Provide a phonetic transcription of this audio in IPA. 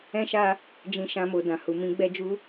ɛ̃˦ ʃ a˦ | d͡ʒ ĩ˧ ʃ ã˧ m o˨ d ã˨ h u˨ m ĩ˨˦ ɡ͡b ɛ˧ d͡ʒ u˧

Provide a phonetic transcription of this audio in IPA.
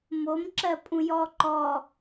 m o m ǁ ɜ pʼ ũ j ɔ ǃ ɔ

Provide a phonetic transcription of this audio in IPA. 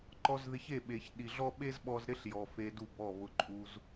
ǃ ɔ˧ z ð ɪ˧ ç e˦˨ ɓ e˨ ç ɗ i˨ ɮ ɔ˦ ɓ e˦ z ɓ ɔ˧ z ɾ ɪ˦ ɬ j ɔ˨ f e˧ d u˦˨ b ɔ˦˨ β ʊ˧ ǃʼ u˧ z

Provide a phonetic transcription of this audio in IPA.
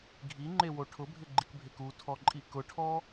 ɡʱ i ŋ͡ǃ e w o ʈʰ ʊ bʱ ɪ ɡ͡ǃ i k bʱ e k u tʰ ɔ ǃʼ i k ʊ ʈʰ ɔ

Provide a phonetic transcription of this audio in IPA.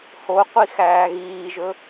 h o qʷ i x æː ɣ iː ʒ ɵ

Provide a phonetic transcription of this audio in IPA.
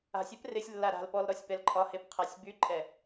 a̤ sʲ ɛ p r ɪ sʲ lː a ɾ a̤ l p ɔ l ɾ ɔ sʲ p ɛ l ǃʼ ɒ h e p qʰ a sʲ b y ǃʼ ɛ

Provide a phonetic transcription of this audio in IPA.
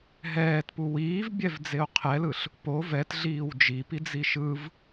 ɦ ɛː t p u w iː v bʲ ɛ v d͡z e o̯ qʰ ɛ l ɯ ɬ | p o v ɛ t ɮ iː w d͡ʒ i p i d͡z i ʃ ɯ v

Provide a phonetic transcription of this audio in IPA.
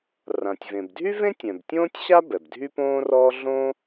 r ã˩ tʲ v ẽ˩ b dʱ y˥ v ẽ˥ tʲ ɛ̃˩ b tʲ õː˥ tʲ ɕ a˥ b ɛ˩ b dʱ y˥ p õː˥ r ɔː˥ ɮ õ˥

